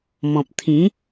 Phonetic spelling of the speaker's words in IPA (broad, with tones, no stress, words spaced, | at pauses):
mɔ̃˨p̚t̪ʰĩ˨˦